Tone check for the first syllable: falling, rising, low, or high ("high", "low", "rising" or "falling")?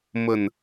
low